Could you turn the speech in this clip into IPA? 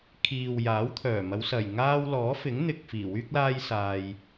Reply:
kʰiː˨wjaː˨˥wt̪ʰœː˨˩ mɐ˨˧wsɐ˨˩j ŋaː˥w lɔː˨˥fɪ˨˥ŋn̪ɪ˨k̚ fiː˨˩wyː˥k̚laː˥jsaː˧j

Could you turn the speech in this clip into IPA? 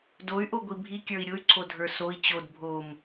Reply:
doy̯ʔoɡʷi bʱikʲə˞i̯ ɾʲʊy̯ǀʰodʱə˞ soi̯ t͡ɕod bʱom

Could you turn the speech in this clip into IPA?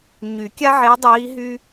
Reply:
ɲy˨˩˦kʲa˥ʕe˧˥ dˤiː˧˥ ɦy˥

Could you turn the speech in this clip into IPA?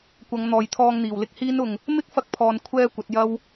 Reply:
kʷɐ˨˧ŋn̪ɔː˨jt̪ʰɔː˧ŋn̪iː˨˩w lɪ˥k̚hiː˥nʊ˧ŋ | mɪ˥k̚fɐ˧k̚pʰɔː˨n kʷʰɛː˧ kʷɐ˨˥t̚jɐ˥w

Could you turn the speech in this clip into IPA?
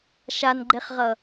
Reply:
ʃanɡ͡ǃeχʁʌ

